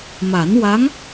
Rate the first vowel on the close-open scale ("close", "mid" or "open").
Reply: open